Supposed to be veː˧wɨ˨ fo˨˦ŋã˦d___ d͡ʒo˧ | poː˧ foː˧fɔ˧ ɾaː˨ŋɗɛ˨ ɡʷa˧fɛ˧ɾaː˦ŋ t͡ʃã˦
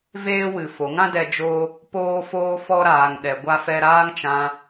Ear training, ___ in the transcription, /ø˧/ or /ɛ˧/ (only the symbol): ɛ˧